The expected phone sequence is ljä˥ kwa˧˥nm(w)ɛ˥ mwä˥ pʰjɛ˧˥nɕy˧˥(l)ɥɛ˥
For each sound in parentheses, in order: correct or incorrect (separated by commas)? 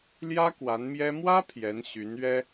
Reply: incorrect, incorrect